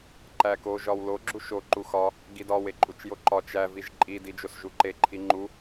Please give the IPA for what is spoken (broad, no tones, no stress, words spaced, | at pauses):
ǃæko ʒɒwlo ɡ͡ǁuʃo ǃuxɒ | ɡidɒw eǃʼut͡ʃjoǃɒ t͡ʃæ viʒǃʼi did͡ʒosʒuǃe ǃʰiŋ͡ǃu